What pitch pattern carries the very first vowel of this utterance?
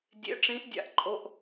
rising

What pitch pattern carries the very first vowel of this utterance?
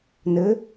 rising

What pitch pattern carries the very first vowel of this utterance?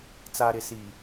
low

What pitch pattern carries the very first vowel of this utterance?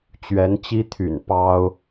rising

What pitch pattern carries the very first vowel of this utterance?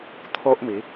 high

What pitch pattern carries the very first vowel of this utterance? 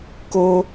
high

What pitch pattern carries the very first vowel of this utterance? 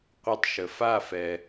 high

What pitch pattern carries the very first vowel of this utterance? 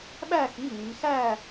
falling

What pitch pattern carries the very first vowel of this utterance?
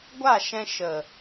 falling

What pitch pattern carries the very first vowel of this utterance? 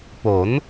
rising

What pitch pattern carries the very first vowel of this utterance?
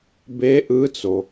rising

